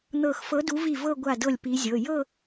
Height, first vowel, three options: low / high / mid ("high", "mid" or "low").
mid